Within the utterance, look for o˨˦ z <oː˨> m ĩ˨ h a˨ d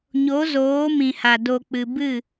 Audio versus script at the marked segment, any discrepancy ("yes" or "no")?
yes